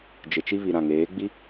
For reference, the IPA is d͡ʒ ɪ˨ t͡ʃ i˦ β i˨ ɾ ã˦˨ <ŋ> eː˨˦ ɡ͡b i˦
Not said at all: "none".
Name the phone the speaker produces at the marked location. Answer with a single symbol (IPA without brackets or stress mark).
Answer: ŋ